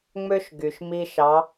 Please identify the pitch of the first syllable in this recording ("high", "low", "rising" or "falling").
high